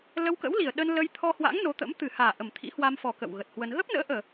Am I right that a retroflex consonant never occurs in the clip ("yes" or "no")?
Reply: yes